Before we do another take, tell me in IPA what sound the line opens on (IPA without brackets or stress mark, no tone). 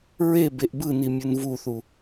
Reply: ɹ